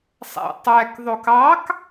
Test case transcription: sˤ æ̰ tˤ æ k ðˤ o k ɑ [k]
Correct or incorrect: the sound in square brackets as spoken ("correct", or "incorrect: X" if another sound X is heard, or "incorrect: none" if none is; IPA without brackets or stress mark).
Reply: correct